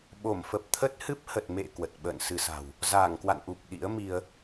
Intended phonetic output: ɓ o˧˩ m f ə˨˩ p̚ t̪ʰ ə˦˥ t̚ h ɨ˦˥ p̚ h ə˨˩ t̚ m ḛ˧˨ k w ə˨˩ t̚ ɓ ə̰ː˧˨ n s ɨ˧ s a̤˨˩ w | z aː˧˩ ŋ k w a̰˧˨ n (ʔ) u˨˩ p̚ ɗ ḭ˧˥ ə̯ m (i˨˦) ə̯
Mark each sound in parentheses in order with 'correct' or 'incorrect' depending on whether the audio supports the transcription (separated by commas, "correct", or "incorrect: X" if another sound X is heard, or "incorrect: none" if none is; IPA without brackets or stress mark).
correct, incorrect: i˧